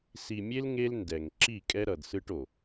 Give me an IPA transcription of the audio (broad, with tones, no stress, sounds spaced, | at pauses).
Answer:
s i˨ mʲ e˦ l ŋ e˦ l n d ɛ˨ ŋ ǁ i˦˨ kʼ ɛ˦ ɾ ʌ˨ d s ɯ˦ ʈ o˨